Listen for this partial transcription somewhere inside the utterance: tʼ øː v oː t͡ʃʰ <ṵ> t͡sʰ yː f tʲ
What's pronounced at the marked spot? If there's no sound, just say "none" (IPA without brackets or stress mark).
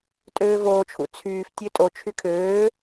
ṵ